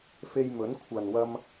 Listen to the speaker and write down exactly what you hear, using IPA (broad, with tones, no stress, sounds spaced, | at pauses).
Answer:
f e˧ j m ɵ˨˥ n kʷʰ ɐ˨ n w ɐ˧ m